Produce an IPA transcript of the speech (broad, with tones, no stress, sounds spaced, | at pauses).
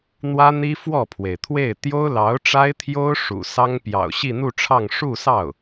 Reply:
n̪ w ä˥ n̪ i˥ f w ɔ˥˩ pʰ w e˩ ɪ̯ t̪ʰ w e˥˩ ɪ̯ t̪ j o˥ ʊ̯ l ɑ˧˥ ʊ̯ ʈ͡ʂ a˥ ɪ̯ t̪ʰ j o˥ ʊ̯ ʂ ṵ˨˩ s ɑ˥ ŋ p j ɑ̰˨˩ ʊ̯ ɕ i˥˧ n̪ u˥˧ ʈ͡ʂʰ ɑ˥˧ ŋ ʂ u˥˧ s ɑ˥˩ ʊ̯